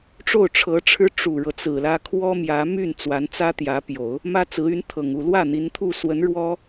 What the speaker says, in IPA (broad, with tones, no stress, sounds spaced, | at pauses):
ʈ͡ʂ o˥˩ ʊ̯ ʈ͡ʂʰ ɤ˧˥ ʈ͡ʂʰ ɻ̩˥ ʈ͡ʂ u˨˩ ɻ ɤ˦ t͡s ɹ̩˨˩ l ä˥ kʰ w ɔ˥ m j ä˧˥ m y˥˩ n t͡s w a˧˥ n t͡s ä˥ t̪ j ä˧˥ p j o˨˩˦ ʊ̯ | m ä˥ t͡s ɹ̩˧˥ y˧˥ n t̪ʰ ɤ˨˩ ŋ u˥˧ l w ä˥˩ n̪ i˧˥ n t̪ʰ u˥˩ s w ə˧˥ n ɻ w ɔ˥